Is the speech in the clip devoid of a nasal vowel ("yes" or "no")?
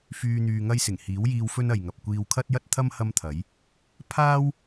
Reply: yes